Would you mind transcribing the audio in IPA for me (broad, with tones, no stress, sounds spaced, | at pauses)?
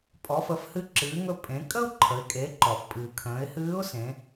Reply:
pʼ ɔ˩˧ f ə˩˧ f h ɨ˧ ǁ ɨː˩˧ ŋ ɵ˧ pʼ ẽ˩˧ kʼ ə˥ ʊ̯ ǃʰ ə˩˧ ɪ̯ kʼ e˩˧ ǃ ɔ˩ f pʼ ɨː˩ kʰ ə̃ː˩˧ ɪ̯ h ɨː˧˥ ʊ̯ s ẽ˩˧